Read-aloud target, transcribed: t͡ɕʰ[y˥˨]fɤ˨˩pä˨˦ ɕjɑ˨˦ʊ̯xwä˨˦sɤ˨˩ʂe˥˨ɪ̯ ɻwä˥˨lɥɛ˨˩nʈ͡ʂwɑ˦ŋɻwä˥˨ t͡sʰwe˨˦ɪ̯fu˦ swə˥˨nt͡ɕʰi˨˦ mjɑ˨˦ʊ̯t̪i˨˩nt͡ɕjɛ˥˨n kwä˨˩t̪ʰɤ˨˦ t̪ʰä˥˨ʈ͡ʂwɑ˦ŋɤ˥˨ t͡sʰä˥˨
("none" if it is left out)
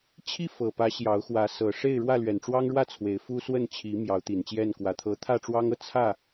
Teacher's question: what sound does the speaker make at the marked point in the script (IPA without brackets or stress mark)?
i˥˨